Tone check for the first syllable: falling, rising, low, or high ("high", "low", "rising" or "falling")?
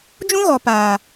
high